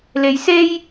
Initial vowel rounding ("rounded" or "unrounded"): unrounded